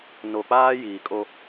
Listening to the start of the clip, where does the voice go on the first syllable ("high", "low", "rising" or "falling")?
low